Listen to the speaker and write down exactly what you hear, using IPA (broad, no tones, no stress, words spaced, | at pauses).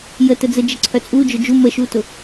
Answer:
jə təd͡zə d͡ʒəǀʰœt͡sʼu d͡ʒʊd͡ʒu məʃutʊ